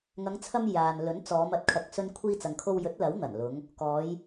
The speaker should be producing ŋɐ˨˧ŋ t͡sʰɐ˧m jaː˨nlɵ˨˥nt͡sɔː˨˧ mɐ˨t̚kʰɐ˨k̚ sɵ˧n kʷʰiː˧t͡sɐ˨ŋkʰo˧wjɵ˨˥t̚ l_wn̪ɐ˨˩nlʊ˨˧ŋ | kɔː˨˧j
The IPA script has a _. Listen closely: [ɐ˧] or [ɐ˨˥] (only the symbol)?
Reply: ɐ˨˥